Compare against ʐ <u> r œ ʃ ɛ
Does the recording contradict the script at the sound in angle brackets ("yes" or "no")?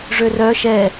yes